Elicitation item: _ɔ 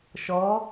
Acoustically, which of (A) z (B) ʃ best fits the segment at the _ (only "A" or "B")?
B